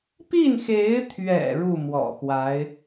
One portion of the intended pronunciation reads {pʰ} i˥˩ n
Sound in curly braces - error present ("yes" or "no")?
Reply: yes